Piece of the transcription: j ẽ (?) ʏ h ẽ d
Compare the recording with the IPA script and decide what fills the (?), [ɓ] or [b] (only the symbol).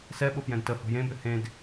b